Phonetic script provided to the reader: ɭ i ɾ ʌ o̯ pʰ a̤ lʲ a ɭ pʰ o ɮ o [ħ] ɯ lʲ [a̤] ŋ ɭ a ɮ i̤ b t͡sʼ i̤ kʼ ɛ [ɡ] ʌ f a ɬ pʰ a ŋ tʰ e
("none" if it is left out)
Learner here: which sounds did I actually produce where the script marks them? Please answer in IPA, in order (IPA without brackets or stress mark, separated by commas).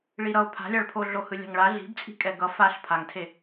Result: h, a̤, ɡ